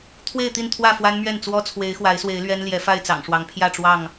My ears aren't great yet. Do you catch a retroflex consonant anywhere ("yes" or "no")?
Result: yes